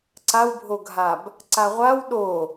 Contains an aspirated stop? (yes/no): no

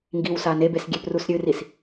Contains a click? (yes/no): no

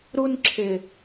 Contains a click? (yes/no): yes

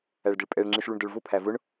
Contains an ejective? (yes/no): yes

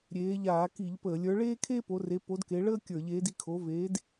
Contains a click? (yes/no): no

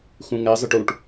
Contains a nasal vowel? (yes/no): yes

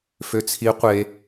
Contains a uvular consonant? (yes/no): yes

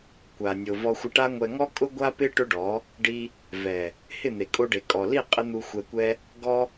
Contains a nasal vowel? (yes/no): no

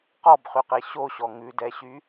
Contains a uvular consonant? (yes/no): yes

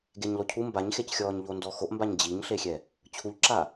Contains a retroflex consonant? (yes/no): no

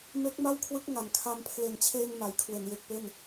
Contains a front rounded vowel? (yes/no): no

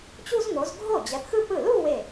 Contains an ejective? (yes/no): no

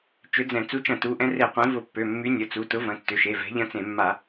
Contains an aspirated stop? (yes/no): no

